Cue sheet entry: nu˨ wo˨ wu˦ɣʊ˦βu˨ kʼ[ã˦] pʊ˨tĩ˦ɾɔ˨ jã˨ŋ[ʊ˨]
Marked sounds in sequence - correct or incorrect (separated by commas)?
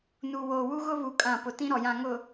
incorrect, correct